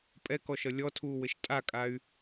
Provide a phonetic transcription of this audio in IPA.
pʼ ɛ k ɔ ʃ ʌ lʲ ɔ tʰ uː w ɘ ʃ tʼ a kʼ a y̯

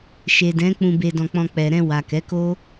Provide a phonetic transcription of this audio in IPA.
ʃ e˨ d ɛ̃˨˦ k͡p ũ˧ b e˧ d ɔ̃˧ k͡p ɔ̃˧ k͡p ɛ˨ ɾ ɛ̃˧ w a˨ k ɛ˨˦ k o˦

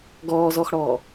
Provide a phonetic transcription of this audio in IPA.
ɡ ɔː z ɔ x ɽ ɔː

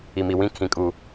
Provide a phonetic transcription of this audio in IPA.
i˨ m i˨ w ĩ˦ kʰ ĩ˨ kʼ u˨

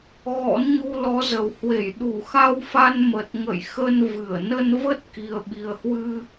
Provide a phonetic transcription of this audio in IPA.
ɣ ɔ̰˧˥ n ɲ u˧ l ɔ˨˦ z ə˨˩ w h w e˧˩ j ɗ u˧˩ x a˧ w f a˧ n m ə˨˩ t̚ ŋ ə̰˧˨ j x ə˧ n v ɨ˧˩ ə̯ n ə˧ n v ə˦˥ t̚ k i˨˩ ə̯ ɓ i˨˩ ə̯ h w ɨ˧

